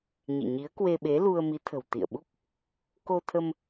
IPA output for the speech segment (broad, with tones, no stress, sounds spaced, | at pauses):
ɲ ḭ˧˨ ɲ i˨˦ ə̯ k w e˧ ɓ e˨˦ l u˧ ə̯ m i˨˦ t̪ʰ ə̤˨˩ w t̪ ḭ˧˨ ə̯ ɓ u˦˥ k̚ | k o˧ t̪ʰ ə˧ m